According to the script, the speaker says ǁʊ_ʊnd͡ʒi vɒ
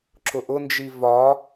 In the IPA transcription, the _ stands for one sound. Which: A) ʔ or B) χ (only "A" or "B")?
A